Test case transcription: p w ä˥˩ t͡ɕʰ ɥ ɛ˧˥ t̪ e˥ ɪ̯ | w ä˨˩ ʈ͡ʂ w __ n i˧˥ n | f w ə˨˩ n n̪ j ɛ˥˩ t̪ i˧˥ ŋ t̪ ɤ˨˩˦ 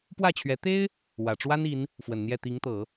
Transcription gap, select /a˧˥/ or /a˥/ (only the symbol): a˥